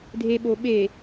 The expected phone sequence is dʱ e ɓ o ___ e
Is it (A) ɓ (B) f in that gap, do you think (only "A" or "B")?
A